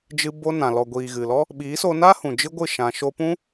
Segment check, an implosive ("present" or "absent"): present